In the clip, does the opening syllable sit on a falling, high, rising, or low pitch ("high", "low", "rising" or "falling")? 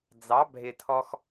rising